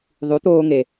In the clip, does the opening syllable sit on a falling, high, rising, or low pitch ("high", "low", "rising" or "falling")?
rising